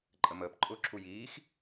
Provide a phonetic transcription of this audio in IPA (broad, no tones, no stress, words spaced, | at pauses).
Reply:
ǃʼəməːp ǃʼʊːǁʰujiːx